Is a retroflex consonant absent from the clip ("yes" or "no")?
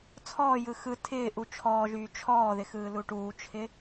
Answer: no